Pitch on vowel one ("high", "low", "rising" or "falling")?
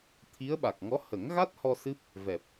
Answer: rising